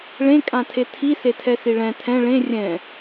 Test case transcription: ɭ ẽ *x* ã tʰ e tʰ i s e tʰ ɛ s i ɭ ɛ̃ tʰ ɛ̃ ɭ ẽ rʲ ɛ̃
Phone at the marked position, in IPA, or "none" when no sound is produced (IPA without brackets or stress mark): kʼ